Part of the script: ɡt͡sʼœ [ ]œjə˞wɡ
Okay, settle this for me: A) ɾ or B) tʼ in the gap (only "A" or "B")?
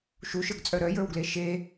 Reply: A